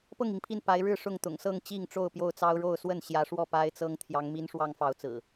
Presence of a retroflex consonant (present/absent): present